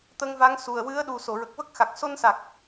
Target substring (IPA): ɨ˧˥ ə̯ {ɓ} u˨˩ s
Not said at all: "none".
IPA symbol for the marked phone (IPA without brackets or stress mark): ɗ